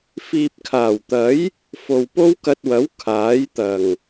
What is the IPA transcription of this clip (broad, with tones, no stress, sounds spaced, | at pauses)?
f iː˨ p̚ kʰ aː˨˩ w t̪ ɐ˨˥ j | f o˨ w p o˥ w k ɐ˧ t̚ w ɐ˨˥ w kʰ aː˨˥ j t̪ ɐ˨˩ ŋ